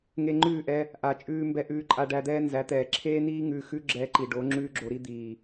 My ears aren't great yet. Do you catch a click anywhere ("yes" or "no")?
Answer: yes